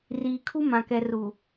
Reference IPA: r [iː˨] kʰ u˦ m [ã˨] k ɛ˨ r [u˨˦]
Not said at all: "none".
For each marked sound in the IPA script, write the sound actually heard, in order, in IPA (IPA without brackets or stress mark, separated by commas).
iː˨, ã˨, u˨